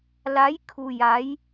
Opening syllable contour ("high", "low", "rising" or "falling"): rising